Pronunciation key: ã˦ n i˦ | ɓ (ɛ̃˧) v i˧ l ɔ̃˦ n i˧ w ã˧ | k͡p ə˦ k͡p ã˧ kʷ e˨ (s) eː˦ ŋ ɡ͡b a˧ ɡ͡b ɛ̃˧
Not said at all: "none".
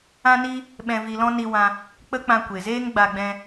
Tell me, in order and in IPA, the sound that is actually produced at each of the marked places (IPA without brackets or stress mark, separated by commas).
ɛ̃˧, z